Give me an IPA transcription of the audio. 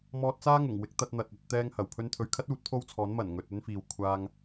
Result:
m ɔː˧ t̚ t͡s aː˥ ŋ ʊ˨˩ ŋ w ɪ˨˥ k̚ t̪ ɐ˧ t̚ n̪ ɐ˨ t̚ ɐ˧ t̚ t̪ ɛː˥ ŋ h ɐ˨˩ w pʰ ɵ˧ n t̪ʰ ɵ˨ ɥ kʰ ɐ˥ t̚ uː˨˥ t̚ pʰ o˥ w t͡sʰ ɔː˨˥ n m ɐ˨˩ n ŋ ɵ˨ t̚ ɵ˥ n f iː˨ w kʷʰ aː˧ ŋ

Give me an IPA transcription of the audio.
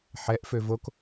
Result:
ħ ɛ ʔ f ø v o k

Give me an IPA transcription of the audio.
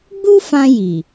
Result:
ɡ͡b u˦ f ã˧ j i˨

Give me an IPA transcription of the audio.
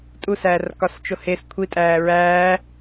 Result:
tʼ u s æː r k ɒ s t͡ʃ o h e s kʷʰ i tʼ æː ɹ æː

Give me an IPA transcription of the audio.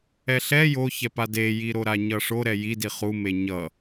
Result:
ɛ ɬ ɛ j o ç ɛ p a d e j i ɾ o ɾ a ɲ ʌ ʂ o ɾ ɛ j i d i χ u m e ɲ ʌ

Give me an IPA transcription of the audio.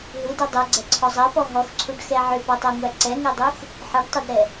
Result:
ɦ ɯ d ɜ dˤ ɛ ɡ͡ǀ ɛ ǀʰ ɔ zˤ ɜ p ɔ ɦ ɔ x ǀʰ u ɖ x ɛ ʕ ʏ p ɔ tˤ ɜ ŋʷ æ ǀ ɛ ŋ ɜ dˤ u x | ħ ɜ ɖ tˤ ɛ d ɾ ɛ

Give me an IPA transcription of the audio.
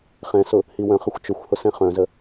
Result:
χ ɛ̃ s ʊ | h i w œ̃ χ ə xʷ t͡ʃ ʊ xʷ h ʊ s ɛ̃ χ œ̃ z ə

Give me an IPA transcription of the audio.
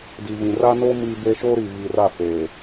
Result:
d i˨ v ĩ˨ r a˦ n o˦ m iː˦ b e˦ ʃ oː˦ ɾ i˨ β iː˨ r a˦˨ f eː˨

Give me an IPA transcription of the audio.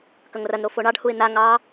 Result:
k ɐ ŋ r ɐ n ɾ o f o ɳ ɑ ɖ h u ɪ̯ n̪ a ŋ ɑ

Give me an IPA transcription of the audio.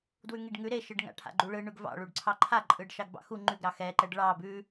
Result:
d w ʉ ŋ i ɖ ŋ ʉ ɾ e ʃ ɯ ɖ ŋ a̰ ʈʰ a̰ ɡ͡ǃ u ɭ ɯ ɳ ʉ ɡ v ɑ̰ ɭ u ɖ ǀʰ ɑ ǃʰ a ǃʼ ɯ ɖ ʃ ɑ ɡ b ɑ̰ x u ŋ͡ǃ ʉ ɡ ɾ ɑ x ɛ ǃ ɛ ɖ ɭ ɑ b ʉ

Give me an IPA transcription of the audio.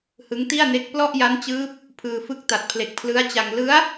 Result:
h ɯ˦˥ ŋ t i˥˩ a̯ n e˦˥ k̚ p l ɔ˥˩ ʔ j a˦˥ n t͡ɕ ɯː˦˥ p̚ | pʰ ɯː˧ f ɯ˦˥ k̚ t a˨˩ t̚ pʰ l e˨˩ k̚ pʰ l ɯ˦˥ a̯ t͡ɕ a˧ ŋ l ɯ˦˥ a̯

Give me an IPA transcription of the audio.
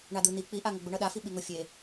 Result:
ɳ a d̪ ɯ n̪ i k͡p i ʔ a ŋ ʌ ɡ͡b u ɳ ʌ ɗ a f i ɓ i ŋ o fʲ e

